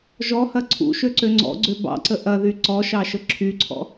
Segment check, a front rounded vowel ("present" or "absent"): present